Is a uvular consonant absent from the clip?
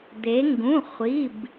no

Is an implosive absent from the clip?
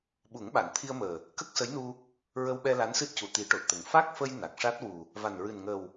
no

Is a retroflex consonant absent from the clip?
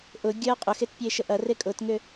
yes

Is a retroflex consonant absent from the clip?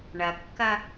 no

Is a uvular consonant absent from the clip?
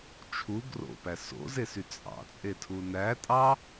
yes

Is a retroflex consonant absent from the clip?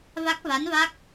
yes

